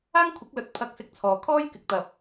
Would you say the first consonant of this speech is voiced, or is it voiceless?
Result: voiced